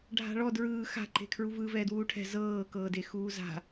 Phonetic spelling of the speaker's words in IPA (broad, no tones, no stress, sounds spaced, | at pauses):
ɖʱ a̤ ɭ ɔ d ɹ ɯː x a̤ ǃ e̤ kʰ ɹ u v ɯ v ɛː d w uː ʈʰ ɛ̤ z ɤː k ɤː d e x uː z a̤